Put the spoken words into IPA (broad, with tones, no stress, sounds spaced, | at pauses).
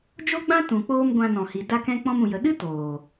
d͡ʒ o˦ ɡ͡b ã˦ t ũ˨ k͡p oː˧ m ɡʷ ã˧ n ɔ̃˨ h i˨ d a˧ k ɛ̃˧ k͡p ɔ̃˧ m ũ˨ j ə˨ ɗ ɨ˦ t oː˨